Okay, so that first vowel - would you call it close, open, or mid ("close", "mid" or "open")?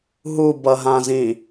close